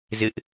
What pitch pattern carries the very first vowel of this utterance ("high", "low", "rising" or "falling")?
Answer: high